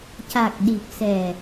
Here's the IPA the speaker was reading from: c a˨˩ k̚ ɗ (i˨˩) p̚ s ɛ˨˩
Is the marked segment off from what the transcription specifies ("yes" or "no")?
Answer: no